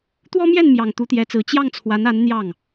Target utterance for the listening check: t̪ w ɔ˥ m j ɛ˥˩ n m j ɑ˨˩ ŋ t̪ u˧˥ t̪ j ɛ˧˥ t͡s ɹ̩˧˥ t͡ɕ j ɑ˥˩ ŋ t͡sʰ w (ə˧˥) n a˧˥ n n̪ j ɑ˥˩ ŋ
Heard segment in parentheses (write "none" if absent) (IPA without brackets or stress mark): a˧˥